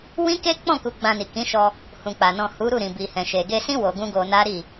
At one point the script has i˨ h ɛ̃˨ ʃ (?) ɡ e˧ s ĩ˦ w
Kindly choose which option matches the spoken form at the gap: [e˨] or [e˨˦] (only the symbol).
e˨